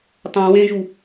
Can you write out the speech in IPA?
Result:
tˤõ wẽʒu

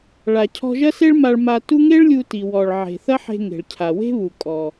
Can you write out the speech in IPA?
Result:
ɭa˩cʰɔ̤˧ʒɐ˥se˥ɭ ma˧ɭma˧ tu˥ ŋe˥ɭlʲu˧ ti˩wɔ˩ɭ ʕe̤˩θɐ˥ħe̤˧ ŋe̤˩ɭcʰa˩ we̤˥βu˩kʼɔ˩

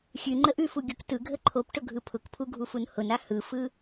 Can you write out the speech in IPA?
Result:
xʲʉ ŋ͡ǃəʔʉfu ɡʲʊktɯɡʱə ǃʰopʈʊ ɡʱɯpʰʊkpʰu ɡʱufunhʊna hɯfɯ

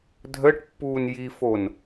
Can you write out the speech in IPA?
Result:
dʱəːʈpːuːn jifon

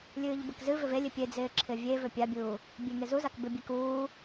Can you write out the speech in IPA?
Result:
lʲɨːʎbɪkzɨvʏv elʲɪ pʲed͡zɪː ǁʰɪvʲevʏ pʲabʲuː | bʲeŋezuzak bɪbʲe kuː

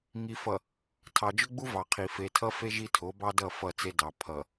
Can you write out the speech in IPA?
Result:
ŋi˨fʌ˨ | tʰɑ˨d͡ʒʊ˦ɡ͡bu˦ vɑ˨qʰi˨ fe˨tʰʌ˦fe˦ ʒi˦tʰo˨˦bɑ˦dʌ˦˨ fʌ˦˨t͡se˦dɑ˨ pʰʌ˨

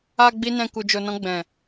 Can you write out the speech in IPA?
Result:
a˨ ɡ͡bi˧nɛ̃˨ ku˨d͡ʒo˨nɔ̃˧ ɡ͡bɛ̃˨

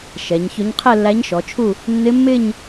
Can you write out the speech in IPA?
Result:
ʃɛ˩˧ɲçʊ˧˥ɲ qʰɛ˥˧lːæ˧˥ɲʃɔ˩˧t͡ʃʰu˥˧ | nːɪ˧˥mːɪ˥˧ɲ

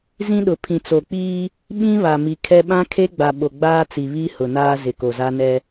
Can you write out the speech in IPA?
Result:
zĩ˦ɗʊ˨ pʰĩ˨t͡so˨k͡piː˦ | ɓĩ˦βa˨ mi˨kʰɛ˦ ɓã˦kʰe˦ɡ͡ba˨ ɓo˨ɡ͡baː˦t͡si˨ βi˦ hʊ˨naː˦ zɪ˨ko˨za˦ nɛ˦

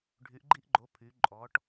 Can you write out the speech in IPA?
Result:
ɖʱy˩˧ʔɡ͡ǃi˧ʔɡ͡ǃo˩˧ pʰy˩˧ ǃʼɔ˩˧ʈ

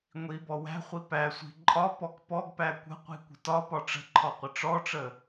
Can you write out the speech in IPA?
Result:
ŋʷi bɔwæ̤χʷi pæsʷi̤ ǃʼɒ pɔkpɔɡpæ kʷə̤ qʷi̤kʷə̤tɒpɒ ʈ͡ʂə̤ǃʰɒ qʷəʈ͡ʂɔʈ͡ʂə

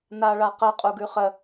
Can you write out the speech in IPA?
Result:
naɭaqə qʼuɡʉχə

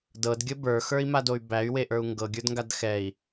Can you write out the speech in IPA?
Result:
dɤdɡʲə bə˞xə˞i̯madoy̯ bæy̯weʔə˞u̯ ŋɡɤɡʲə˞dŋɡad xɛi̯

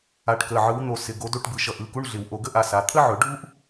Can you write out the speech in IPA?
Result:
a˨˦ʈkə˩˧˩ʕɯ˨˦w n̪o˨˩˦sɪ˩˧˩ ɡo˨˦do˦˨ʈbɯ˩˧˩ ʃʌ˨˦ʔɯ˩˧˩ku˧˥˧ɳɮɪ˨˩˦w ʔo˨˩˦ɡə˥ ʔa˨˦sa˩˧˩ t̪ʰə˥ʕɵ˨˩˦ɖʱu˥ʔ

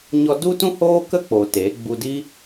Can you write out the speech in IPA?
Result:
ɲɔ˧du˦tũ˦hoː˦ kə˦k͡po˨ te˨˦ ɡ͡bu˧di˦

